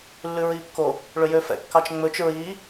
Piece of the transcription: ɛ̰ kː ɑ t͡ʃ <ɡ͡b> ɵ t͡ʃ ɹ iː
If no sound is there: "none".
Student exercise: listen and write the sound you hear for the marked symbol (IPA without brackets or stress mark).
ŋ͡m